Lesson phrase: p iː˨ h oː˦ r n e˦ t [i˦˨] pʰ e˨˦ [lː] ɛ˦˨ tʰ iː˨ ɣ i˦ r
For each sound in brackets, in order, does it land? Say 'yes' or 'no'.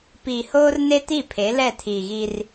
yes, no

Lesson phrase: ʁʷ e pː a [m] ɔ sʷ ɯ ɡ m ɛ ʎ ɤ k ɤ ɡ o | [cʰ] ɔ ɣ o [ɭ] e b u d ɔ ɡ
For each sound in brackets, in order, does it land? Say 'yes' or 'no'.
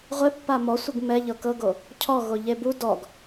yes, yes, no

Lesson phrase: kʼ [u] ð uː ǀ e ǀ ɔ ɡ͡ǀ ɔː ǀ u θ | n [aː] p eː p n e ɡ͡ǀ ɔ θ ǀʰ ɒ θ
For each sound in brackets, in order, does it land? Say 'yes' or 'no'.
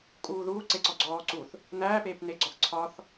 no, no

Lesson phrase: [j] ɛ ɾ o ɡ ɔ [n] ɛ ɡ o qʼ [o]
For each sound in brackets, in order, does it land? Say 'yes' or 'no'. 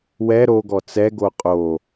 no, no, yes

